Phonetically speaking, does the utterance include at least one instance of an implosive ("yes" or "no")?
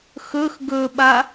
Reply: yes